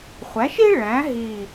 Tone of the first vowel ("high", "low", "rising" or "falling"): rising